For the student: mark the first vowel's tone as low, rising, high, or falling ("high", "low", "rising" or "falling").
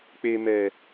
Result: low